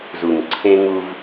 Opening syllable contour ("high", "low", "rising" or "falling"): low